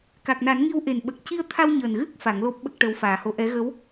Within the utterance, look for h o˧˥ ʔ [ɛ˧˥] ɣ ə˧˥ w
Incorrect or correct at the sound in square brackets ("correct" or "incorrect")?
correct